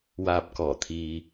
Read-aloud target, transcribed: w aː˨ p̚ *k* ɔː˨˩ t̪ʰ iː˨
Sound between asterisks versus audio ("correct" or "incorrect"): correct